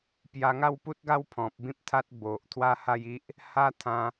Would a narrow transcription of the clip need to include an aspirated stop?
yes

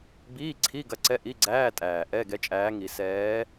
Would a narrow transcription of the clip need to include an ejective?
yes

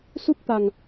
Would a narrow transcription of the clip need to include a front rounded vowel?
no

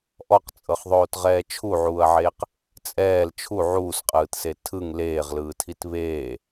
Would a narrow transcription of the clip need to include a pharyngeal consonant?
yes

